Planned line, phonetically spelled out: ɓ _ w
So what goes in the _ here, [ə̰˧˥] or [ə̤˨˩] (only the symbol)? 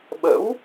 ə̰˧˥